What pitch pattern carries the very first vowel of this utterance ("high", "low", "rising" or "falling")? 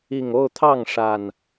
low